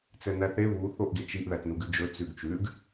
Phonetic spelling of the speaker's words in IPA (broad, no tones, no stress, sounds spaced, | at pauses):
t͡s ɛ n æ θ e β u θ o ʔ ɡ e t͡ʃ i ʔ ð æ t n u ɡ ʉ d͡ʒ ɵ t͡s ʉ ɡ t͡ʃ ʉ ɡ